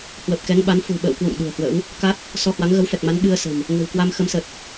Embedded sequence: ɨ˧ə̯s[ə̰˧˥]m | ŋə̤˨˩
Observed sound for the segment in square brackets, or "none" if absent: ə̤˨˩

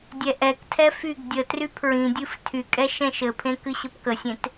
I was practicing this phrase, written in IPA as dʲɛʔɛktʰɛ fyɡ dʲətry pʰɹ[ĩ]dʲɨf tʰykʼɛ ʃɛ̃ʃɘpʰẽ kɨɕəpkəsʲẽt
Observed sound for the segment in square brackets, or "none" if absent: ĩ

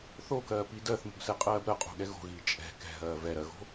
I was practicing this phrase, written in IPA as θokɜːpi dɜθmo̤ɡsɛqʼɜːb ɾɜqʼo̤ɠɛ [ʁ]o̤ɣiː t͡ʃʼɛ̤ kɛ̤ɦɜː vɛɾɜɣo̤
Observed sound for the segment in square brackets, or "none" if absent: ɣ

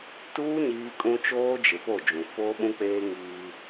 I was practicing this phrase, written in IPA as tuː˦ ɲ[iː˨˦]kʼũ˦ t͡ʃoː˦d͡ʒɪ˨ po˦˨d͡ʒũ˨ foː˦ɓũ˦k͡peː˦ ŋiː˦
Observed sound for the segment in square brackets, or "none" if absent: iː˦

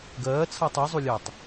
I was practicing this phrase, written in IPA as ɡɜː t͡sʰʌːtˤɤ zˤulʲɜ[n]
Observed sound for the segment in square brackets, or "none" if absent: tˤ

